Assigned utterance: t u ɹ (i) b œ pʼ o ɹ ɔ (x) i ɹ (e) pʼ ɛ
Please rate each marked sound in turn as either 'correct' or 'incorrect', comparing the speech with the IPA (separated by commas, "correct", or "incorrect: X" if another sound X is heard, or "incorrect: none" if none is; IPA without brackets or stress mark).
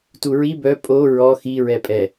correct, correct, incorrect: ɛ